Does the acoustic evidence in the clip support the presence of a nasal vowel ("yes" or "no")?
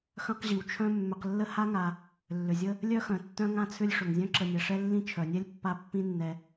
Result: yes